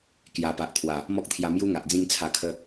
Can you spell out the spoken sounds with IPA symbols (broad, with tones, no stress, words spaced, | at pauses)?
kja˨˩pa˨ʔt̪ʰwa˨˩ | mɔ˦k̚t̪ʰja˧mju˦ ŋa˨ʔd͡zĩ˥˧ŋt͡sʰa˧kʰə˦